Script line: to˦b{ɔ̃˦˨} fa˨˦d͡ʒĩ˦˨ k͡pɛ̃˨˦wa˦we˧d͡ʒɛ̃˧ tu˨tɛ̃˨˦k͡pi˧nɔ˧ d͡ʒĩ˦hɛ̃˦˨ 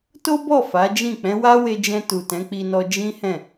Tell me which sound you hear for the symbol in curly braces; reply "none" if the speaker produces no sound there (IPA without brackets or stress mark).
ɔ˦˨